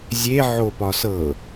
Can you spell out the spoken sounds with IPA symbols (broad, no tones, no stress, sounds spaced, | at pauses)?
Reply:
zʲ e ʕ o p ɒ s ɤ